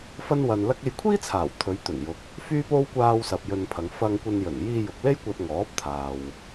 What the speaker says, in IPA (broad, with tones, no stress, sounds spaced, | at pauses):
f ɐ˥ n w ɐ˧ n l ɐ˥ k̚ e˧ j kʷʰ iː˥ t͡sʰ aː˨˩ w t̪ʰ ɵ˨˧ ɥ t̪ ɵ˨˩ n j ʊ˨ k̚ | f yː˥ p o˥ w kʷ aː˧ w s ɐ˨ p̚ j ɵ˧ n pʰ ɐ˨˧ ŋ f ɐ˧ ŋ kʷ ɐ˧ n j ɵ˨˩ n j iː˧ j ʊ˨ k̚ l e˥ j kʷ ɐ˧ t̚ ŋ ɔː˨˥ p̚ t̪ʰ aː˨ w